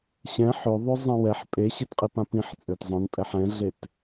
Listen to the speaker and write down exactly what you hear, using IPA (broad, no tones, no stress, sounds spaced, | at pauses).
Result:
ɕ ɛ̃ ħ ø ðˤ ø zˤ ẽ w ɛ ħ pʼ e ɕ e t qʼ i p ã p ĩ ħ t͡sʼ ø t zˤ œ̃ n pʼ ɛ ħ ɛ̃ ɮ e t